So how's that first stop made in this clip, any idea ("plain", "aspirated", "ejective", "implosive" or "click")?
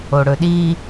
implosive